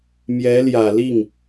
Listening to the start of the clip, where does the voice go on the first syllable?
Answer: rising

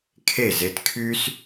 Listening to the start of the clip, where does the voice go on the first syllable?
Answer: falling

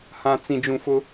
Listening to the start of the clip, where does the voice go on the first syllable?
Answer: low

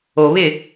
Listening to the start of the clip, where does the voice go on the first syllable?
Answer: low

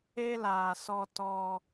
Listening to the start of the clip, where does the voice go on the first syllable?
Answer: high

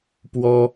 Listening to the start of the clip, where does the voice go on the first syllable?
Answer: high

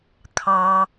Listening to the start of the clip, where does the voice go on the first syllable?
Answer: low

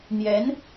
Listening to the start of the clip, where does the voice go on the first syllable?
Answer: rising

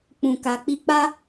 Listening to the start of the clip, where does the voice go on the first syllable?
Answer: low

